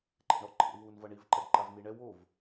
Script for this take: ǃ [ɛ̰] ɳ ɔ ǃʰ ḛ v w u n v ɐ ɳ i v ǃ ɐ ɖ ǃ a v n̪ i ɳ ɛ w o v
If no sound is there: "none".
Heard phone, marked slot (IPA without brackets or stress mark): ɛ̰